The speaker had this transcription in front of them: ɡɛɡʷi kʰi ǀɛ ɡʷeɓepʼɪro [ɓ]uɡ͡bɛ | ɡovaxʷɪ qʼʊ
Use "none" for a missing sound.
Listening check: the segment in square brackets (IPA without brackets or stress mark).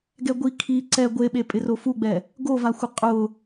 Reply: f